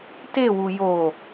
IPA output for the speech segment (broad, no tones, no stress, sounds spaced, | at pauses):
t e w u j o